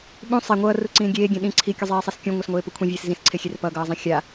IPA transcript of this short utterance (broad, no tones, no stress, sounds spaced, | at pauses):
ɓ ũ sˤ e ŋʷ ʌː r u ǀ ĩː ɡʲ eː ɡʲ ẽ ɗ ĩ ǀʰ i kʲ u zˤ eː sˤ e s kʲ ũ ŋʷ ɛ s ŋʷ eː p u kʷʰ ĩ vʲ eː s z ĩ s ǀʰ e xʲ e r p ʌ ɡ ʌː zˤ ɛ̃ xʲ a